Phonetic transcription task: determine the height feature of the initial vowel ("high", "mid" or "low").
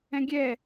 mid